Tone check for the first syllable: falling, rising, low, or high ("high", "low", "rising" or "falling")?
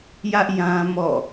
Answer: high